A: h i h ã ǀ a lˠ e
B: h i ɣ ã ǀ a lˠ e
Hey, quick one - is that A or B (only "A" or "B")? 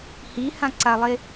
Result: A